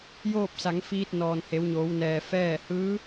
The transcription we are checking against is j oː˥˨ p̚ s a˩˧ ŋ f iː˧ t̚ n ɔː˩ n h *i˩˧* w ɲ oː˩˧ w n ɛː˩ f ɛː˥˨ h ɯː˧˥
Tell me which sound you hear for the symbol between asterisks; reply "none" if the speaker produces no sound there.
e˩˧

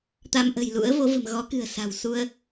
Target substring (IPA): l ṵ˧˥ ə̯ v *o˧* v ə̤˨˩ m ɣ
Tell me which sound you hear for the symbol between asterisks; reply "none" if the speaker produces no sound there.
o˨˦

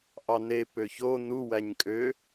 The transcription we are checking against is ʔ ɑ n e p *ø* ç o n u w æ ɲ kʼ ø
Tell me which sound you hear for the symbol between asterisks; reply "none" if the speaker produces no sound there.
ø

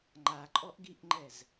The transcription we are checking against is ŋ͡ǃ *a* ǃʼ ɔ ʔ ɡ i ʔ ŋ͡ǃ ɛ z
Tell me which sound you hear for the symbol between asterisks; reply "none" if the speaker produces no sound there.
a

